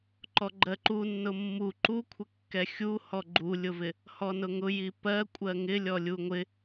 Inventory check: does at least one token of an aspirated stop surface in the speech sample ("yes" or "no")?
yes